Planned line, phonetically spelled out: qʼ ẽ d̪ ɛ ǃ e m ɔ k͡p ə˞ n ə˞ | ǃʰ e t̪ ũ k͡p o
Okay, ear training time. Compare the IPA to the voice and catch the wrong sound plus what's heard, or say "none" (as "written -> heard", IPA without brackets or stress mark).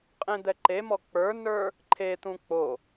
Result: none